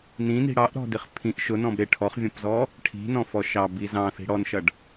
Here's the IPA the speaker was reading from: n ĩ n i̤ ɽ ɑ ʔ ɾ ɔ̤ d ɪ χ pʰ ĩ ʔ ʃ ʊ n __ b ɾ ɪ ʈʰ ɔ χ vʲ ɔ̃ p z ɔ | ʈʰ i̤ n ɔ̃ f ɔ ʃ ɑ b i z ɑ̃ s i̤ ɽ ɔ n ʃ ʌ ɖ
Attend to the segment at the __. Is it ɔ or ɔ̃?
ɔ̃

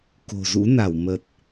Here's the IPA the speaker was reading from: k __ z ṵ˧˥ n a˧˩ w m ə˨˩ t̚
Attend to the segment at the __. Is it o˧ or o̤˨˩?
o̤˨˩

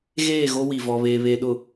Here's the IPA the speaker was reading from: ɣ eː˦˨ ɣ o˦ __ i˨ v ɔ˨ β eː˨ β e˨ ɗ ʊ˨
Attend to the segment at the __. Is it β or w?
w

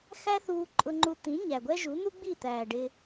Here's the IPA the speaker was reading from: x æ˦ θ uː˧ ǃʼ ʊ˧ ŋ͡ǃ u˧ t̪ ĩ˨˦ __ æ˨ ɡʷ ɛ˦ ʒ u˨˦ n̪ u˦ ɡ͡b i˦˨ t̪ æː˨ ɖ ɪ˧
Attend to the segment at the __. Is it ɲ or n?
ɲ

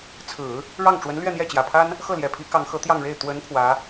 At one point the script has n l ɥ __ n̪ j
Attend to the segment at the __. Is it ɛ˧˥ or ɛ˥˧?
ɛ˥˧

